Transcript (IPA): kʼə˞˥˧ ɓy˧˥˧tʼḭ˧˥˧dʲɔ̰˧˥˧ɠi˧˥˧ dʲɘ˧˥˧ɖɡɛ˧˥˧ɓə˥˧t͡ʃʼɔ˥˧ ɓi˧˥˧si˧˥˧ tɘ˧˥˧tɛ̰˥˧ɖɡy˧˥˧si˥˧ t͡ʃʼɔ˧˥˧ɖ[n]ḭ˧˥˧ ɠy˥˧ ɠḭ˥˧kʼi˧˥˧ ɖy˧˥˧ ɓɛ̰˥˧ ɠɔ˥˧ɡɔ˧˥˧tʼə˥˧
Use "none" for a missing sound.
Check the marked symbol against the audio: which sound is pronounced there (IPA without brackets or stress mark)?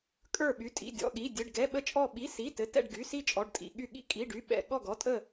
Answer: tʼ